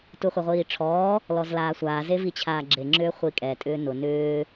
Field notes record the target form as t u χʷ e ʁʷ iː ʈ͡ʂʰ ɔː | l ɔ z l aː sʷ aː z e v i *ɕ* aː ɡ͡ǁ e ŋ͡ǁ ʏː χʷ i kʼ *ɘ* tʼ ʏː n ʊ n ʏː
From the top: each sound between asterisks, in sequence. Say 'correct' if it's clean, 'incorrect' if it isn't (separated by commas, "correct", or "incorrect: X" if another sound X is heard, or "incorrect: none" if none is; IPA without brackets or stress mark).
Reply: incorrect: t͡ɕʰ, incorrect: ɛ